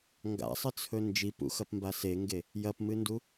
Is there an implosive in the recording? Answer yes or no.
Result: no